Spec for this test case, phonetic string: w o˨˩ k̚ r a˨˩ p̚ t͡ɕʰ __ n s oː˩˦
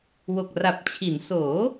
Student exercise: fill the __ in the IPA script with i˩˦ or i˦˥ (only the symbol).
i˩˦